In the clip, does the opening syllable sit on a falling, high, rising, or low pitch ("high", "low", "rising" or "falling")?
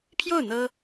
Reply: falling